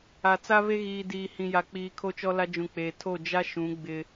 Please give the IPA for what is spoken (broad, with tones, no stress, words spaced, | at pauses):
a˨t͡sa˦βe˦ ɣiː˨diː˨hĩ˨ ja˨k͡piː˨ kʰo˦t͡ʃɔ˦la˦ d͡ʒũ˨k͡peː˨ tʰo˦˨d͡ʒa˦ ʃũ˨˦ ɡ͡bɪ˦